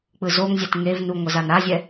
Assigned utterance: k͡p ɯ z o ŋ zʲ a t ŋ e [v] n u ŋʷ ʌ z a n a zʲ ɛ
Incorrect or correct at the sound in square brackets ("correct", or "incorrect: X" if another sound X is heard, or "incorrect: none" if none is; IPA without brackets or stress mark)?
correct